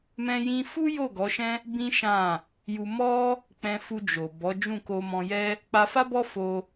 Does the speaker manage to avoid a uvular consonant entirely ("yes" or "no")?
yes